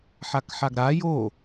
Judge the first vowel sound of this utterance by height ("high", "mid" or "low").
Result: low